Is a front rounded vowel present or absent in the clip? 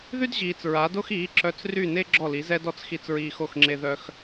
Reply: present